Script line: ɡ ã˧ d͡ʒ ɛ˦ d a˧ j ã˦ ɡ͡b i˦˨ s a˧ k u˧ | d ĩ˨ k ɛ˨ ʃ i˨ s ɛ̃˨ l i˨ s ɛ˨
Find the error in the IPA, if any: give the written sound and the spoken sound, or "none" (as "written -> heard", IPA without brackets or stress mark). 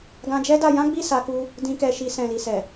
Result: none